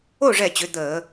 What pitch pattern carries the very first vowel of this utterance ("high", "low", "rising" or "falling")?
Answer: falling